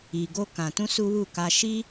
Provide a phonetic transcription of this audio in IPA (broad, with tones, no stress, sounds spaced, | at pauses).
i˧ ɡ o˦ k ã˧ t ũ˦ s u˦ w u˦˨ k a˧ ʃ i˦